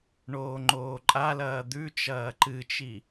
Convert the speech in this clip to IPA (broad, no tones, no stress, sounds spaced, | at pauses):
ɳ oː ŋ͡ǃ oː ǃʼ a l ɐː d̪ ʉ t͡ʃ ɐː ǃ ɨ t͡ʃ i